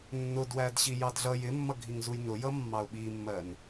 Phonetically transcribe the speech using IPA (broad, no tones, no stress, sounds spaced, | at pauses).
nː ʊ d w æ d ɕ i j ɑ d ɮ ʌ j ɪ mː ʌ ɡʱ i ŋ z u j n ʊ j ʌ mː ɑ ʊ̯ ɓ i mː ɜ n